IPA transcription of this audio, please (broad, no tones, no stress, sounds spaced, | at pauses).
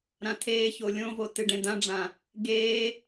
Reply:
ɾ ã tʰ eː ç o lʲ õ v o t ɨ ɖ ẽ d̪ ã ɖ͡ʐ ã | ɡ eː